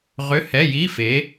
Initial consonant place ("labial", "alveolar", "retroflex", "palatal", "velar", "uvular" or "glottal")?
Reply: uvular